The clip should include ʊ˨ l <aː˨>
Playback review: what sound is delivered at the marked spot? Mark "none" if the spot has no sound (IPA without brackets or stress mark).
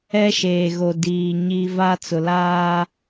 aː˦